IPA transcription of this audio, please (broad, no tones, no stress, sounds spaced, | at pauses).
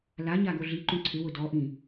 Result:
l a ɲ a ɡ o ɮ i ǃ ũ ǀʰ ɪ w ʊ d ɔ ʔ ĩ